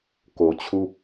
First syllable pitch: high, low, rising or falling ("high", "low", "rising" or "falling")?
low